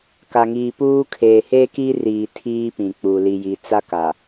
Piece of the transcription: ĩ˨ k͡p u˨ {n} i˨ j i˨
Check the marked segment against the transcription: incorrect: l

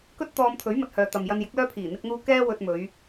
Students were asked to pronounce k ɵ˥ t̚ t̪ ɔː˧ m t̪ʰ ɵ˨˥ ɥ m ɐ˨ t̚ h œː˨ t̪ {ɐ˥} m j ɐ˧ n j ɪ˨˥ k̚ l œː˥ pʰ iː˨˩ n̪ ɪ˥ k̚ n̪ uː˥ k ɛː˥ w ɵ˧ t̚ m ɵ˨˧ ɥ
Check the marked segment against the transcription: incorrect: ɐ˨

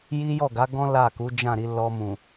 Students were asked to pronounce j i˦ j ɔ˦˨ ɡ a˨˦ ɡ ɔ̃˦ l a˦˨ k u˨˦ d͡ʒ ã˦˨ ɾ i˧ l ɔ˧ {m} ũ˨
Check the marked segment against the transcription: correct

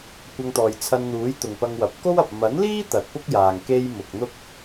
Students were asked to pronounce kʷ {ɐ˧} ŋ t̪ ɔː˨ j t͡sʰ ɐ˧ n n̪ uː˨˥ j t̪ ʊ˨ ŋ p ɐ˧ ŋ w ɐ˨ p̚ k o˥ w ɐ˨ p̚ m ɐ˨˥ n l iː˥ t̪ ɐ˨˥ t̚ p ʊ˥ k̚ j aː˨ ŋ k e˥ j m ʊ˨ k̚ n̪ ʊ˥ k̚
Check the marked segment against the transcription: correct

